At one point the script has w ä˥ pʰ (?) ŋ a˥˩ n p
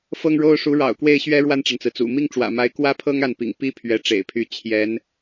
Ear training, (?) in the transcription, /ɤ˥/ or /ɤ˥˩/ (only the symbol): ɤ˥